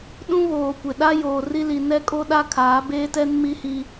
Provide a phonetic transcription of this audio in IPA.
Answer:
ɗũ˦βoː˨kʷɪ˨ɗa˦ joː˨ri˦li˨ nɛ˦kʼo˦ɗa˦ kʰaː˨˦beː˦tɛ˦n mi˦hi˦

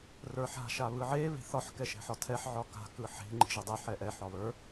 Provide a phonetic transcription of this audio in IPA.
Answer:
rə˞ħa̤ ʃaβɯʕe βe̤θɒħ kɛʃɛ̤ħɒtʰɛħ ʕɒka̤ kɯħe̤ ŋ͡ǃi̤ʒɯdˤɛ ħɛʔɛ ħɒβə˞

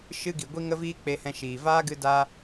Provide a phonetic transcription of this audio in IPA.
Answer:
ʃɨ˦ɡi˨ ɡʷi˧ŋə˧viː˧ k͡pe˧hɛ̃˧ʃiː˨ vaː˦ɡɨ˧daː˧

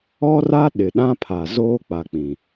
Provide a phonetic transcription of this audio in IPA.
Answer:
ɔ˦ra˦ ɗɪ˨ɗã˦pʰa˨ zoː˦k͡pa˨k͡pĩ˨

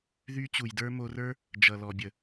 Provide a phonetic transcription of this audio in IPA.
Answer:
ðy˧ t͡ɕu˨jdə˞˦mo˧rə˞˦ | d͡ʒʌ˨lɔ˨bʲə˨

